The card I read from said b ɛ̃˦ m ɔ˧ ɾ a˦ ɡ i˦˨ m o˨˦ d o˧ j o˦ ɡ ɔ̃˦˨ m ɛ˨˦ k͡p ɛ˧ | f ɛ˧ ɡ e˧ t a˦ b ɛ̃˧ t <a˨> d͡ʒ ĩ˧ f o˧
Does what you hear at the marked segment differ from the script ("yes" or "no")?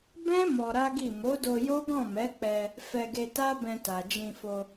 no